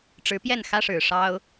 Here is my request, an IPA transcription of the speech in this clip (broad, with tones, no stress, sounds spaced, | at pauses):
ʈ͡ʂ ɻ̩˧˥ p j ɛ˥˩ n x ä˥ ʂ ɻ̩˨˩ ʂ ɑ˥ ʊ̯